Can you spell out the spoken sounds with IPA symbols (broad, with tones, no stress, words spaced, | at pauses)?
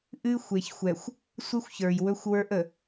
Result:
ʔɨ˦ xʷe˨çxʷɛ˨xʷ | sʷɨ˦xʷçə˞˨j wɵ˦xʷwə˞˦ʔ ə˨